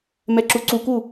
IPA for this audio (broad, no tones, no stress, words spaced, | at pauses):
mɛǁuǀuku